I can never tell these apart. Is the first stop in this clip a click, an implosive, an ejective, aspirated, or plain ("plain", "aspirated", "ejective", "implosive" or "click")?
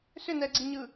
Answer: click